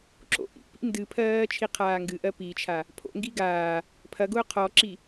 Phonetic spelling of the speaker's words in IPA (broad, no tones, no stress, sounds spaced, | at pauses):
ǁ o̰ ʔ ḭ p ḭ n d ɨ pʰ ɜː t͡ʃʰ i qʰ aː ŋ ɡ ɨ ʔ ɜ p i t͡ʃʰ a | pʰ o̰ ŋ ɡ i ɡ aː | pʰ ɐ ɡ ʊː qʰ ɔ ǁ i